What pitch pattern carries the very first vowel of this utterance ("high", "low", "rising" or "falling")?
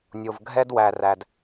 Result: low